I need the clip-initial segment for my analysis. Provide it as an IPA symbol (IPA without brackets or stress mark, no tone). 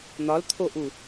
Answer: n̪